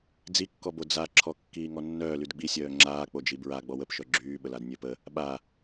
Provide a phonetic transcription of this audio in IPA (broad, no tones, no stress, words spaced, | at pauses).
d͡zikːɔbo d͡zaǁʰɔ kːiːŋɔnːœːlyd ɡ͡bisʲœː ŋ͡ǁaːk͡po d͡ʒibɹa ɡ͡bɔwəpʃœ ɡ͡ǁyːɓəlad nʲøpə | ɓa